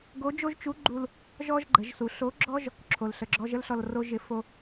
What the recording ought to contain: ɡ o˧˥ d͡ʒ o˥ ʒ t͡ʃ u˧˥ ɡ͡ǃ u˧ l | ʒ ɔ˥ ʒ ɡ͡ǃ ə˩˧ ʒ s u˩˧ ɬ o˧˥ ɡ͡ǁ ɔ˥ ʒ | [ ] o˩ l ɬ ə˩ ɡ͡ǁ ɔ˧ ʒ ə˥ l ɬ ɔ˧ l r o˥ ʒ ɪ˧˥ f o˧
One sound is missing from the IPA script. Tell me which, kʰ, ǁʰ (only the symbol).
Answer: ǁʰ